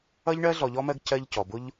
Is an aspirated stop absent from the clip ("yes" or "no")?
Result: no